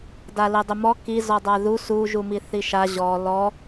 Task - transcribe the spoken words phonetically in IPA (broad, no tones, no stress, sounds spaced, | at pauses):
d a l i dˤ ʏ m ɔ k i z ɔ dˤ a ð u s u ʒ u m i θ i ʃ a ʑ ɔ l ɔ